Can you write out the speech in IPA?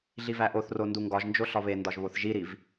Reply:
ɮivæʔoθro nduŋɡɒʒnd͡ʒo ɬɒβendɒʒ βoθʒiɾiv

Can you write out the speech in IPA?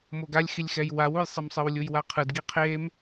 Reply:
moɡalʲxilʲxɛj wawujsˤemsˤɯw lʲujwaqʰɯd ɡiqʰem

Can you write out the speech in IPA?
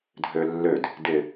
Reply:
dʱølːød | dɪ

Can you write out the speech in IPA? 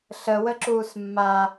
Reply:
ɬəwəǁuːs mːa

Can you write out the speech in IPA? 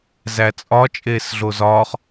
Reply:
zæt͡sʼɒ t͡ʃʼeːsɮozɒːχ

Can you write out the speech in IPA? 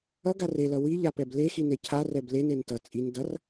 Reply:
ʌɡar elʌ wiʎapɛb lexine cʰarɛb lenen tʌ t͡sʼin dʌr

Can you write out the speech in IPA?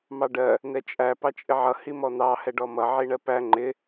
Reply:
mɑɖɜ | nɛt͡ʃʼæ pɑt͡ʃʼɪʕʌ himɔn̪ɑ hɛɖɔmʌ ʕiɳɜpæ ŋ͡ǃɪ

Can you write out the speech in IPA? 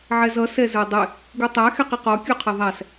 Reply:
ʕɛzʌ sɛzə˞dˤɪ | ɡutˤæ xɛqiqɔ kʲuqʰʌðˤæs

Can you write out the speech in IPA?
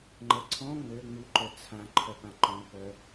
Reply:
ŋ͡ǃə ǀʰɔ̃ ŋ͡mø ŋ͡mu ǃœt͡sʰã ǃʰœpãǃɔ̃pœ

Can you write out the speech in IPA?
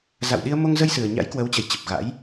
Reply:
za̰˧˨wɗi˧ə̯ mo˧ŋzə˧j sɨ˨˩ə̯ɲa̰˧˥jkwə˨˦wt͡ɕə˨˩j t͡ɕə˨˩p̚ɣa̰˧˥j

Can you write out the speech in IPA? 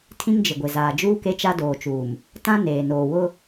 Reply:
tʰĩ˦ŋd͡ʒɪ˨ɡʷɪ˨ zaː˨d͡ʒuː˦ke˦t͡ʃa˦ doː˨t͡ʃuː˨m | tã˦ neː˨noː˨wʊ˦

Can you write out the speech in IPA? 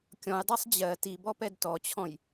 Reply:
kʲɔ̃jdˤɜsˤ d͡ʑɜ tibɔpɛd tɔt͡ɕʰɔ̃j

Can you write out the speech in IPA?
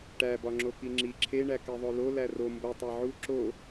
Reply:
ʈæbɒ ŋ͡ǁokiŋ͡ǁi ǁʰeɳæ keðˤolo læro mbo tˤæʕu ǁo

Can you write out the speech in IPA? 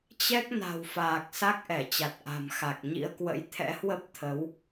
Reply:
t͡ɕɛ˦˥k̚na̤˨˩wfaː˨˩k̚ sa˦˥k̚ʔɛ˧˩t͡ɕa˨˩t̚ ʔa̤˨˩mxa˨˩k̚ ɲḭ˧˥ə̯kwə̰˧˥j t̪ʰɛ̰˧˥hwə˦˥p̚ t̪ʰə˨˦w

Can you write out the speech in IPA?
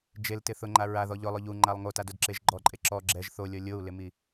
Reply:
d͡ʒeltɪ θʊŋ͡ǃa ɹaðɔ ʎʊlˠʊ ʎuŋ͡ǃalˠ ŋotadodǁeʒ ɡ͡ǃɔǃʼe ǁɔ ɡ͡ǁɛʒ θolʲɔ lʲou̯lɪmi

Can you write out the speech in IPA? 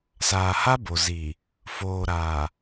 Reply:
saː˨ha˦bo˨ zi˨ | foː˨ɾaː˨

